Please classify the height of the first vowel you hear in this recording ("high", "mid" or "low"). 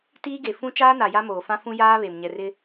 high